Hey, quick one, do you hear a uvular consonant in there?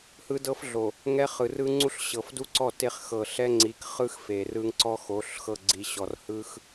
yes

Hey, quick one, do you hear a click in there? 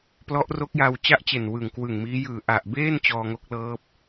no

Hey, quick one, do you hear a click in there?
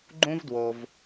yes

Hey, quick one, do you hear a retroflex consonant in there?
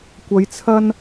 no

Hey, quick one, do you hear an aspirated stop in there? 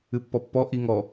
no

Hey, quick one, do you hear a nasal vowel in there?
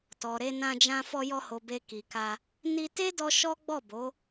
yes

